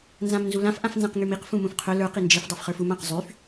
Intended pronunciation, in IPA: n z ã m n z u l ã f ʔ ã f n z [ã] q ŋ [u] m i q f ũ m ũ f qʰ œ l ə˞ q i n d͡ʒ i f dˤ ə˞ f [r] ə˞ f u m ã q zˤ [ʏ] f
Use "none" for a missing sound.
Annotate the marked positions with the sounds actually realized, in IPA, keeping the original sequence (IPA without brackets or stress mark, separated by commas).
ã, y, χ, y